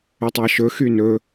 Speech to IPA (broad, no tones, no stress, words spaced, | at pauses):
ɵtˤɑʃɵ xynɵ